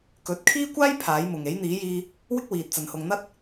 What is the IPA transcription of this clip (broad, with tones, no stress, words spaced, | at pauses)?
kɵ˨˥t̚kʰiː˥kʷaː˥j pʰaː˨˥jmʊ˨ŋ e˨˥jn̪iː˨˥jiː˧ | wɪ˥k̚wiː˨t̚t͡sɐ˨n hʊ˨ŋn̪ɐ˥t̚